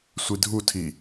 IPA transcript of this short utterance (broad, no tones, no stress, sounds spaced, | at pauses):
sʷ i dʱ u tʰ i